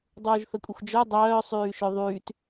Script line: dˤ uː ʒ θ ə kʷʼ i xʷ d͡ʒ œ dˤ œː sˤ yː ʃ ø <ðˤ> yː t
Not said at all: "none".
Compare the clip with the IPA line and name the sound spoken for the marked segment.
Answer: ðˤ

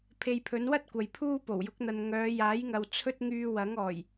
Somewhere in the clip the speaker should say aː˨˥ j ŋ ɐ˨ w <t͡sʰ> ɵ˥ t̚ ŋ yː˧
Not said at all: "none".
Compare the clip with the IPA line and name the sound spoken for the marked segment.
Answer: t͡sʰ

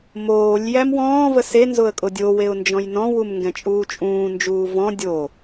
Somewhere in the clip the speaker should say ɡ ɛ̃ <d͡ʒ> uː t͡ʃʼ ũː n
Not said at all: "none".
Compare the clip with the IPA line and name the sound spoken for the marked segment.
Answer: t͡ʃʼ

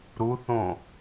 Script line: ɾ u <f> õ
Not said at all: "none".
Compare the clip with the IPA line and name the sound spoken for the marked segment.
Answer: θ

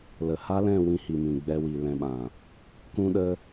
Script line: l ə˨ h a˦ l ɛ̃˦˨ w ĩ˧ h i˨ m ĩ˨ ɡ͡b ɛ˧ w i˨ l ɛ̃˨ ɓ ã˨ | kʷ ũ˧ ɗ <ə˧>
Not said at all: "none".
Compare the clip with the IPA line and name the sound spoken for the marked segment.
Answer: ə˧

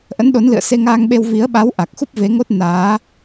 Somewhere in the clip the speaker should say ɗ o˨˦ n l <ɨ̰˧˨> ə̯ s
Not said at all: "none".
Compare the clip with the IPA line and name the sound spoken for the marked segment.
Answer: ɨ̰˧˨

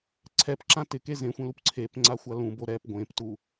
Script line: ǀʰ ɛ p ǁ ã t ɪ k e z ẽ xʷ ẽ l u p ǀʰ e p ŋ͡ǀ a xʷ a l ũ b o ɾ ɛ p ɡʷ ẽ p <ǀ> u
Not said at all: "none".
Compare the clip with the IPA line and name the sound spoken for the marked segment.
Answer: t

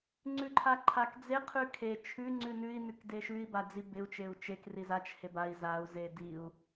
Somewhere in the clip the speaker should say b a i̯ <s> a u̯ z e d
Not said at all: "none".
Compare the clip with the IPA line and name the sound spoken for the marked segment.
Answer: z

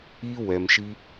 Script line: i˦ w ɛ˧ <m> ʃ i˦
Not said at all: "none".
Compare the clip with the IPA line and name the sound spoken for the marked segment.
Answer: m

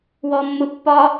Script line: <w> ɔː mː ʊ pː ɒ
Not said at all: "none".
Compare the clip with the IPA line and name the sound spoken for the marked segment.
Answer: w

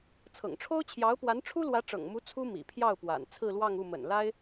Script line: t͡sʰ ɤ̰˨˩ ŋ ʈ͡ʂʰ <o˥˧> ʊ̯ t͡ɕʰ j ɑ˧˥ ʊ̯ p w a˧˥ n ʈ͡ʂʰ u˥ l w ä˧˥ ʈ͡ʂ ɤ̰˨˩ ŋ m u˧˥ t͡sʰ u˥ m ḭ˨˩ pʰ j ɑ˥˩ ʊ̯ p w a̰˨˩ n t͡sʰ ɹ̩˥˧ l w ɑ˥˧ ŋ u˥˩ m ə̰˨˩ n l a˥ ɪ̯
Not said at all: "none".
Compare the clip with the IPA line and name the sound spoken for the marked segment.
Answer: o˥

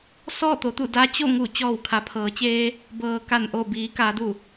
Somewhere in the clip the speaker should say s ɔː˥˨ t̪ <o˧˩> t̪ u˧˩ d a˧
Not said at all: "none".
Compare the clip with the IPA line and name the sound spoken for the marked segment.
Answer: o˩˧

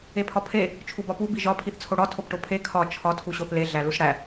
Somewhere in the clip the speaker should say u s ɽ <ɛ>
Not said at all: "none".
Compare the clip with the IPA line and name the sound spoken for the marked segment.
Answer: æ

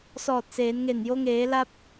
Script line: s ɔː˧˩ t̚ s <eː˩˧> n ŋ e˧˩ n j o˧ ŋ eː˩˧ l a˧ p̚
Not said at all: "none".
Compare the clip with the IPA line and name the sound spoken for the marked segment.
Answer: eː˩˧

